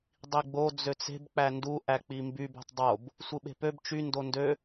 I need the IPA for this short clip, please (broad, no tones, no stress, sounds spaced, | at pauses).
dˤ i ɡ͡b o d͡z ø t͡s e̤ b k͡p æ n d u ʔ æ k͡p i m b y b o̤ tˤ dˤ o b | sʷ ɯ ɓ e̤ p ø b t͡ʃ y n d o n d ø